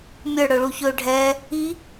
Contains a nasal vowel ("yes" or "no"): no